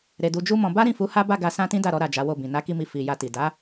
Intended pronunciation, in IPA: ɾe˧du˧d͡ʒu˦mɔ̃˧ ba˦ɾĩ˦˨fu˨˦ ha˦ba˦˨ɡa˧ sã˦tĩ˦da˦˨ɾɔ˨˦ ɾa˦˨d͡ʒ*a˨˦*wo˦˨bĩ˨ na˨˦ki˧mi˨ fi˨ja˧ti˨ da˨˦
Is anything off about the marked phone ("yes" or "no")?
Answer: no